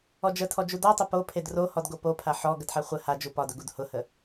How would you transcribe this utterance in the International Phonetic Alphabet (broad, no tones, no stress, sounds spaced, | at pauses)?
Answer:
ɔ d͡ʒ ə tʰ ɔ d͡ʒ u d ɔ tˤ ʊ p o pʰ e d r o h ɔ d ɡ o p o pʰ a ħ ɔ ɡ ə d ħ a χʷ ə h a d͡ʒ u p ɒ d ʊ ɡ u d h ʊ h ə